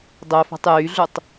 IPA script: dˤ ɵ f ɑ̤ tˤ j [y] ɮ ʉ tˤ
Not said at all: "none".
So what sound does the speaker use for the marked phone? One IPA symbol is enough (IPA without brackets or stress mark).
y